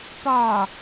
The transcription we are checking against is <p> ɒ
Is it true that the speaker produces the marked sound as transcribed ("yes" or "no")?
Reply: yes